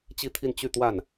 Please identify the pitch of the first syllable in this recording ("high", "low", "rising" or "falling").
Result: falling